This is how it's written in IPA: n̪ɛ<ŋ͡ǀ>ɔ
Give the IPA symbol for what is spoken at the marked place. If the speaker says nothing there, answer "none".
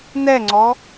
ŋ͡ǀ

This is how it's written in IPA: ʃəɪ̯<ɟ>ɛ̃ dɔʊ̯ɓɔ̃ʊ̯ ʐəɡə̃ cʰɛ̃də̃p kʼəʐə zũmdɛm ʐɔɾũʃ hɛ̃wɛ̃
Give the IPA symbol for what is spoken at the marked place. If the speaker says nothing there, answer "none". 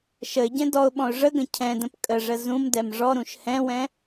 ɟ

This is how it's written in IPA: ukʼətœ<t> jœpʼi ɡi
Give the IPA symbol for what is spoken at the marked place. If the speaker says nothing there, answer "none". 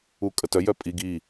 none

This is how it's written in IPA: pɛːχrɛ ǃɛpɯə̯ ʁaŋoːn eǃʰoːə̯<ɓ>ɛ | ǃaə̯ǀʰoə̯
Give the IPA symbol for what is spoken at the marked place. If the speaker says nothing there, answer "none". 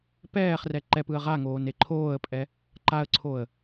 pʼ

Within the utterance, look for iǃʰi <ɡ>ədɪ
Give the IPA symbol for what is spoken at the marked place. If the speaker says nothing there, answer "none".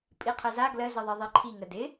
ŋ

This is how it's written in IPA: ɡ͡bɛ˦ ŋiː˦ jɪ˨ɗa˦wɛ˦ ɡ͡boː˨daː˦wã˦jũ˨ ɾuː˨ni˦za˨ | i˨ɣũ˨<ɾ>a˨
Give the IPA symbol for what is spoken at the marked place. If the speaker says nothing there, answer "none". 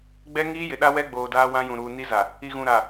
ɾ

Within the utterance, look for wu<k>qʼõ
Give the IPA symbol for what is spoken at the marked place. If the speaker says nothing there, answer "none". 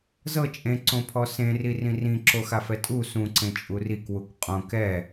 k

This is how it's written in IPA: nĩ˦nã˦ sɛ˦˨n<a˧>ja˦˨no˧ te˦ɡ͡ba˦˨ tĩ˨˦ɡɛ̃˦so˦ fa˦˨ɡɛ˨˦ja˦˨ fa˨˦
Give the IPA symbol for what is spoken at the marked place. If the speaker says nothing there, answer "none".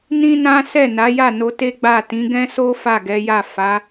a˨˦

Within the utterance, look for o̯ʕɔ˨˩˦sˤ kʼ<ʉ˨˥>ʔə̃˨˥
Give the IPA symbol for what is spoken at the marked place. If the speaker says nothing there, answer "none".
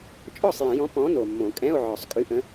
ʉ˨˥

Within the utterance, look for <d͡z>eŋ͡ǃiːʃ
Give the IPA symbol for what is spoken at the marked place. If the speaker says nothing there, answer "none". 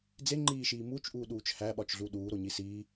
d͡z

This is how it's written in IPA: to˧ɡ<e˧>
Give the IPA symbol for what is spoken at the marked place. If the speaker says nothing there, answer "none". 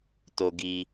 i˧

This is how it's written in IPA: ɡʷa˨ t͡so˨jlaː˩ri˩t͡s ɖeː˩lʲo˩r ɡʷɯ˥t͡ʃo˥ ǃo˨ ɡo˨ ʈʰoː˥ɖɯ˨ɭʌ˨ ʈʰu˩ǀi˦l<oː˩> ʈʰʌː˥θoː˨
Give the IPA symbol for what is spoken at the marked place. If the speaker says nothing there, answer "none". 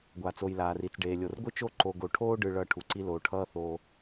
oː˩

